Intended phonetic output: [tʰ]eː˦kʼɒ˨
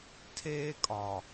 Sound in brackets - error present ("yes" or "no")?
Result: no